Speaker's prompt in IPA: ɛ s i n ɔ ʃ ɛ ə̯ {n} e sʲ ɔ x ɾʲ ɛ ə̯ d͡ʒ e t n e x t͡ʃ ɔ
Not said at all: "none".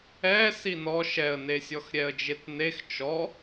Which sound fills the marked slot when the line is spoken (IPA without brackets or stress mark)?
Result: n